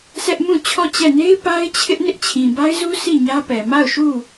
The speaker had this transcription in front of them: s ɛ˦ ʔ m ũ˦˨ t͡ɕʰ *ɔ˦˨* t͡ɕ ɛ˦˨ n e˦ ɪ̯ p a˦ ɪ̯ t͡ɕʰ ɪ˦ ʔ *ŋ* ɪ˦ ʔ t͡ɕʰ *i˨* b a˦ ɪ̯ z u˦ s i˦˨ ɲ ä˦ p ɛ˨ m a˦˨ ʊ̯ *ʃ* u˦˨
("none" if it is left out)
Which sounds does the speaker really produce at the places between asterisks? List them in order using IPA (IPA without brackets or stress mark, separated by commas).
ɔ˦˨, n, ĩ˨, ʃ